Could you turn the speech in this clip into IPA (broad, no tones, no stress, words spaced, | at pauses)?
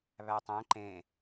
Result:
βætˤæ̃ ǃẽ